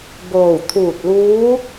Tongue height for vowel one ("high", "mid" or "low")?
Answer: mid